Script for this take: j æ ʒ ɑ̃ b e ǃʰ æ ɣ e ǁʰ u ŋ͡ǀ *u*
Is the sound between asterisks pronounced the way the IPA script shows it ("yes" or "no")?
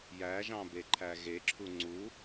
yes